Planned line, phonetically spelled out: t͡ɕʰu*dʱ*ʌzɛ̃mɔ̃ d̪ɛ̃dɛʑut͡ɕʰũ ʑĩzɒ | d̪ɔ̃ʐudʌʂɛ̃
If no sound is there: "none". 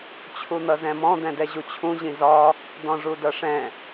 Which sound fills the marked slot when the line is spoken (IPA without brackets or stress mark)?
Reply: n̪